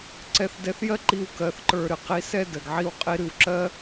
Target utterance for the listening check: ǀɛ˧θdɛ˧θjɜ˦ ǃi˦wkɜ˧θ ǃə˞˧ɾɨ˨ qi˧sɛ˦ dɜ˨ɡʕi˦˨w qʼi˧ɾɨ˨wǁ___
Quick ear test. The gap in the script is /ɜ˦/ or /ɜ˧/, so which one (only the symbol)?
ɜ˦